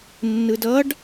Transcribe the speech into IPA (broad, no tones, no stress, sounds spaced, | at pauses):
nː ɯ d ʌ ɖ